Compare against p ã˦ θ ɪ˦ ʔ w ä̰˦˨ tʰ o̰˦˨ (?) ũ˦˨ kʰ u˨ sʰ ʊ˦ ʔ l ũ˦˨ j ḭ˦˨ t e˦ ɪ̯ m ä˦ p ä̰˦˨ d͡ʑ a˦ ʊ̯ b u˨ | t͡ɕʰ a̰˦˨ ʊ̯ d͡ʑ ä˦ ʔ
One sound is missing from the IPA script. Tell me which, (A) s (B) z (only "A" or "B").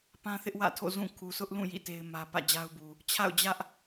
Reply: B